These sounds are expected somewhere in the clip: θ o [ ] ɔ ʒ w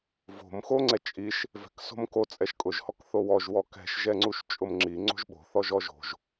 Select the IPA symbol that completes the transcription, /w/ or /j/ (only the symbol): w